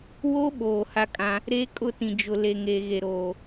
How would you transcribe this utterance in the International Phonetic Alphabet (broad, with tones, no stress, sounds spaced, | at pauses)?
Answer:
w o˦ ɓ oː˨ h a˦ kʼ ã˦ | ɾ e˦ kʼ ʊ˦˨ t ĩ˨ d͡ʒ ʊ˨ l e˨ ŋ eː˨ ɣ e˨ ɾ oː˨